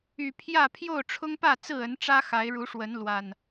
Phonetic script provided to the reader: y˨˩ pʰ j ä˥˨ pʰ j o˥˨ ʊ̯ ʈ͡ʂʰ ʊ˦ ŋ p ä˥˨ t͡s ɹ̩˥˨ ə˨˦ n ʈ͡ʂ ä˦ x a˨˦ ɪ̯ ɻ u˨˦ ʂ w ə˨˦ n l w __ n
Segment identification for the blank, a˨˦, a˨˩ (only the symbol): a˨˩